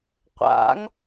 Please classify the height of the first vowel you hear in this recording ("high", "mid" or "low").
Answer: low